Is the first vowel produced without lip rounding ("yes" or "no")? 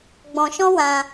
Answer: no